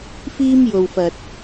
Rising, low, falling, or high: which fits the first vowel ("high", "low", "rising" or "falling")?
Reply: high